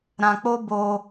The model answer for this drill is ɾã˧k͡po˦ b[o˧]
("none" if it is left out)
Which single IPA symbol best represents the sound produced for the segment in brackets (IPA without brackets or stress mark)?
o˧